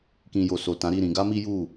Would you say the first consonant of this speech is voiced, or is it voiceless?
voiceless